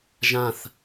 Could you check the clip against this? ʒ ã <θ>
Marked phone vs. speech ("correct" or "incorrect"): correct